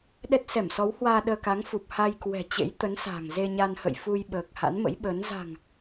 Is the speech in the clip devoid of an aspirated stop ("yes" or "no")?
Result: yes